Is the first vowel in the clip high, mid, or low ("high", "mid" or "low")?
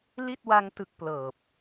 high